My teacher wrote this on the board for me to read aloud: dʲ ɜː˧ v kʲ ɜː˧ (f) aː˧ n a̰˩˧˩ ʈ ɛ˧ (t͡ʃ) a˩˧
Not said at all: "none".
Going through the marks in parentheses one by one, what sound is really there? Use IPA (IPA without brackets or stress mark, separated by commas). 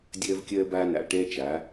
b, t͡ʃ